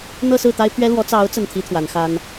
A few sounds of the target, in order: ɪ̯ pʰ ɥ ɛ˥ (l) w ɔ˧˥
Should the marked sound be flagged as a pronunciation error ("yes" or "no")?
no